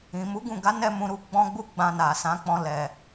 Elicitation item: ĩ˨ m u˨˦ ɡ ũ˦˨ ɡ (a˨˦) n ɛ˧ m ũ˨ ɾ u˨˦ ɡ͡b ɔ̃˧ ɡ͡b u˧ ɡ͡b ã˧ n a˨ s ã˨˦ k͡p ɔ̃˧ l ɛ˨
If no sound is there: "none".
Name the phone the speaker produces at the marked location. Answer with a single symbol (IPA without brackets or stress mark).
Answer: a˨˦